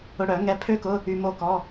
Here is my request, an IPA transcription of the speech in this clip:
ʊ˧ ɽ œ˨˩˦ ŋ ɛ˧ pʰ ø˥ k ʊ˧˥˧ | y˧ m o˥˧ k ɔ˧˥˧

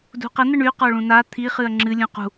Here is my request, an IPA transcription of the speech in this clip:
d ṳ q ə n̪ ə ɳ y q ɔ ɭ ũ n a t̪ʰ i χ ɨ ɐ̯ ŋ͡ǁ ɨ lʲ ũ q ṳ

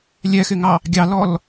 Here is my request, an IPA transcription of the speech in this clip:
lʲ ɛ x ɪ ŋ ɑ | ɡʲ ɑ l ɔ l

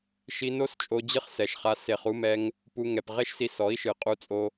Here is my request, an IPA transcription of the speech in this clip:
ʃ i˧ n o˦ s t͡ʃʼ o˧ d͡ʑ ɨ˦ χ s ɛ˨ ʃ χ a˧ s e˨ χ u˧ m ɛ˧ ŋ | p u˧ ŋ ɛ˨ p ʁ e˦ ʃ s i˧ s ɔ˨˦ i̯ ʃ ɨ˨ qʼ u˧ t͡sʼ o˧

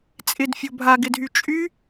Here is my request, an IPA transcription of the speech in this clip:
t͡sʼ ɪ d fʲ o bʱ a ɡ ɪ dʱ y t͡ʃʼ y

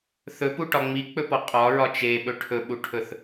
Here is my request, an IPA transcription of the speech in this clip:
θ ɵ p u ʈ ɒ ŋ͡m i k͡p ɵ p ɔ qʼ ɒ ɹ ɒ t͡ʃ e ɓ ɵ ʈʰ ɵ ɓ u ʈʰ ɵ θ

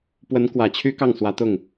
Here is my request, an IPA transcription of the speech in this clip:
p w ə˧˥ n k w ä˨˩ t͡ɕʰ y˥ k ɑ˥˩ ŋ s w ä˧˥ t̪ ʊ˥˩ ŋ

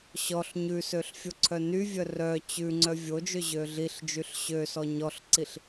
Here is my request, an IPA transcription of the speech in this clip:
ɕ ɔ ɬ ɲ ʉ s ø ɬ fʲ o ǀʰ œ n y vʲ œ r œ t͡ɕ ʉ ŋ͡ǀ œ vʲ o d͡ʒ ø ʑ ø ɮ i ɬ d͡ʒ y ɬ ɕ ø s ɔ ɲ ɔ ɬ ǀ i ɬ

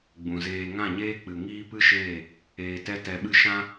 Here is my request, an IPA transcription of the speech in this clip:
ɡ͡b ũ˨ z eː˧ ŋ ã˦˨ ɲ eː˦ k͡p ɨ˨ ŋ iː˦ p ɨ˦ ʃ eː˦˨ | eː˧ t ɛ˦ t ɛ˧ ɓ ɨ˦ ʃ ã˦

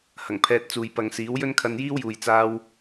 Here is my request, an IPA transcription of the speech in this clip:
h ɐ˨˩ ŋ pʰ ɛː˧ t̚ t͡s uː˨ j p ɐ˨ ŋ s iː˨˥ w j ɵ˥ n kʰ ɐ˧ n j iː˥ w j uː˨ j t͡s aː˧ w

